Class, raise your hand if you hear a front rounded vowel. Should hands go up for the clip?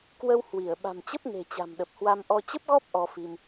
no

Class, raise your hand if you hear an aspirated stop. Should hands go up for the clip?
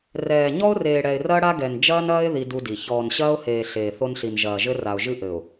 no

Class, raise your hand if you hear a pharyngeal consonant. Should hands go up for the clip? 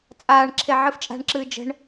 yes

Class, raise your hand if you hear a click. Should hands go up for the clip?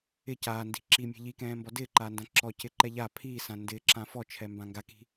yes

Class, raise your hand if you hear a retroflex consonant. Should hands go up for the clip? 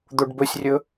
yes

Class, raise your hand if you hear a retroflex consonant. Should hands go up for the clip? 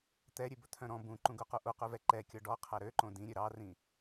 yes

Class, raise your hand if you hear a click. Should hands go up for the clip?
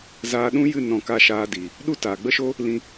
no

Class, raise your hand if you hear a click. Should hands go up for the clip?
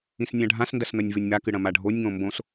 no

